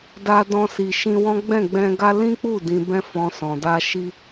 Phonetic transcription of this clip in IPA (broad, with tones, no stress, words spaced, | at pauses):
da˧ dɔ̃˦si˧ ʃĩ˧wɔ̃˦ ɡ͡bɛ̃˦˨ɡ͡bɛ̃˧ɡa˦ lĩ˦k͡pu˦˨ dĩ˧bɛ̃˦fɔ̃˧ sɔ̃˨da˧ʃi˧